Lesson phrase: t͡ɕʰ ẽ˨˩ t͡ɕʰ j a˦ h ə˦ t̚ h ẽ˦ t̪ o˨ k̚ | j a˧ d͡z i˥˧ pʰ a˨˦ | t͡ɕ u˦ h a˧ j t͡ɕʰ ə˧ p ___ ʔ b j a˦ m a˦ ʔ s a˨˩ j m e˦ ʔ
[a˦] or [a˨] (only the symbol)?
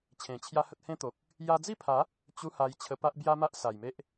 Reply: a˦